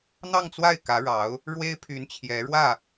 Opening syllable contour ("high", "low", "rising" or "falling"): falling